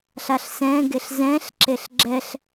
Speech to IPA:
ɬ a ɬ s ɛ̃ ɡ e ɬ z ɛ̃ ɬ ǁ e ɬ ɡ͡ǁ ɛ ɬ

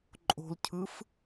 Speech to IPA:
ǃʼ o̤ l cʰ ɯ f

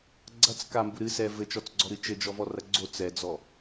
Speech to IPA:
ɡ͡ǀ ɐ t͡s k a m b u ɾ ɨ s ɛ v ɘ t͡ʃ ɔ t͡s ɡ͡ǀ ɔ ɾ ɨ t͡ʃ ɘ d͡ʒ ɔ v ɔ r ɐ ɡ͡ǀ o t͡s ɛ d͡z ɔ

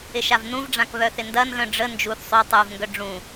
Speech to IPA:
ɪ ʃ a v n ũ v ɖ͡ʐ ã k β œ θ ɪ n d ɐ n ɣ œ̃ ɖ͡ʐ ə n d͡ʒ u θ sˤ y tˤ u v ŋ ɡ œ ɖ͡ʐ ũ

